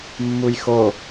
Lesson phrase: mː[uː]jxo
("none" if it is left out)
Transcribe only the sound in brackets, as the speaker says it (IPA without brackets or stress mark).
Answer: u